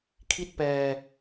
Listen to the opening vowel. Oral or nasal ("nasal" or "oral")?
oral